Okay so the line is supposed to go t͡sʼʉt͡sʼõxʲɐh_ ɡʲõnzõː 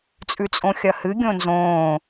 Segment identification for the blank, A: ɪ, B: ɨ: B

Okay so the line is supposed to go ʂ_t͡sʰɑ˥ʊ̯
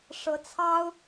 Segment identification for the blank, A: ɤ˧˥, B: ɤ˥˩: A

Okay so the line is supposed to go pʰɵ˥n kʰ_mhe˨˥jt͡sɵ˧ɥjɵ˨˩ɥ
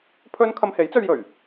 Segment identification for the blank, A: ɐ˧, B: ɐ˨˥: A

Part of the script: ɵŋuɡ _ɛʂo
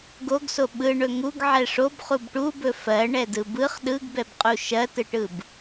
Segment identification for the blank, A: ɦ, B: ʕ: B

